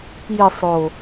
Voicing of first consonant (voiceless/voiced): voiceless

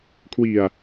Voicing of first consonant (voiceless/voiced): voiceless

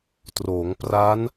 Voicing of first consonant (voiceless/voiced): voiceless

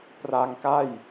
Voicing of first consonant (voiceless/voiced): voiceless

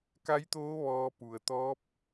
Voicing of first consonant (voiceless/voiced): voiceless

